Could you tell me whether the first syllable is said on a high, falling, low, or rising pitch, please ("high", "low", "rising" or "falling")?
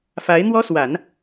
rising